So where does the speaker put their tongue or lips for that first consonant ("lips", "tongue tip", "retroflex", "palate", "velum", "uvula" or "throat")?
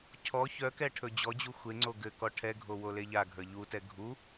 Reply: palate